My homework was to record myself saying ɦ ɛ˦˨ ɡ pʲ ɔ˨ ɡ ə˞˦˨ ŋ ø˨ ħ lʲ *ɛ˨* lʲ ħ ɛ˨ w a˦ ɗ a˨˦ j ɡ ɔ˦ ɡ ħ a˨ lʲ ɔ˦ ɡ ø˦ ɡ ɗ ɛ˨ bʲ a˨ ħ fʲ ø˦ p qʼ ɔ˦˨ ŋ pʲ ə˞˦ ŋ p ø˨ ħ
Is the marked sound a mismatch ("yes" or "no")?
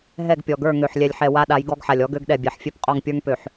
no